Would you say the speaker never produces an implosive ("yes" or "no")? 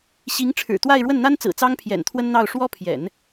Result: yes